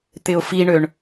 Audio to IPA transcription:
t̪ ɪ ʊ̯ f i ɳ ø ɳ

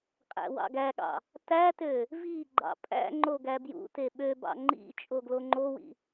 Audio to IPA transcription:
qʼ æ̰ w ɑ̰ ɡ æ ɠ ɑ̰ | t æ t ø | v i ɡ͡ǃ ɑ̰ pʼ æ̰ ŋ͡ǃ o ɡ æ b j ṵ t e ɓ ø b ɑ̰ ŋ͡ǃ ḭ t͡ʃʼ o ɡ l o ŋ͡ǃ o w ḭ

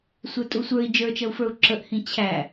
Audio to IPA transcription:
sʷ ə˞ tʼ u sʷ ə˞ i̯ d͡ʒ ə˞ t͡ʃ ʌ u̯ f ə˞ u̯ ǁ ə ʔ h ĩ t͡ɕʰ æ

